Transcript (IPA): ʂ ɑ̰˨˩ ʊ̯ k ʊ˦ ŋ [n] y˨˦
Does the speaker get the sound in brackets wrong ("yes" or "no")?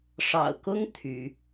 yes